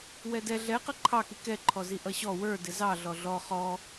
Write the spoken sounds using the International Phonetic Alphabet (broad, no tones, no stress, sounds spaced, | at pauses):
w ɛ d ɛ ɮ ɛ q ʌ ǃʰ ɑ k i k ɛ ǃʰ ɔ z i ʔ ʌ ɕ ɔ w ə˞ d ɪ z ɑ ɮ ɔ ɮ ɔ χ ɔ